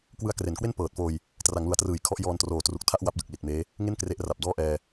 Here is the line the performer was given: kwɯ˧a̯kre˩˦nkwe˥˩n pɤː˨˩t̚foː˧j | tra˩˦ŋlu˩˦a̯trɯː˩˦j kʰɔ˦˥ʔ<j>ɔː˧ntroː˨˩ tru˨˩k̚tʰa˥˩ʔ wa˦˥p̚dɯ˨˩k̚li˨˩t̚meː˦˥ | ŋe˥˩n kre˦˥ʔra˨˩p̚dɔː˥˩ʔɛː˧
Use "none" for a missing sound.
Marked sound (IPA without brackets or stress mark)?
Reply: j